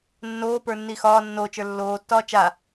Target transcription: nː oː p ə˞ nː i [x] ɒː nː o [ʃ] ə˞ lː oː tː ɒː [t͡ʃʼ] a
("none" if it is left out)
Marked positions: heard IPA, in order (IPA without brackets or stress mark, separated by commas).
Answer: x, t͡ʃ, t͡ʃ